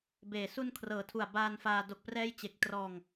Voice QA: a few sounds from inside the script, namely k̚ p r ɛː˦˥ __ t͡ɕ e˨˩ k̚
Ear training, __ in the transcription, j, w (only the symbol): j